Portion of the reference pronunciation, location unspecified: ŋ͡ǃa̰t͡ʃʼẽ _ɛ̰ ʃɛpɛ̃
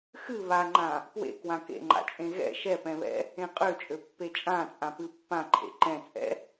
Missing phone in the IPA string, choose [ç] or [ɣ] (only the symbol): ɣ